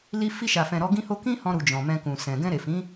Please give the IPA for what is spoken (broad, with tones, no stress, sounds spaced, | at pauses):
l i˧ f i˧ ʃ a˨ f ɛ̃˨ ɾ ɔ˨˦ ɡ ĩ˦ h o˦ k ĩ˦ h ɔ̃˧ ɾ u˨ d͡ʒ ɔ̃˨ m ɛ̃˧ k ũ˨ s ɛ̃˨ ɡ ɛ̃˧ ɾ e˨ f ĩ˨˦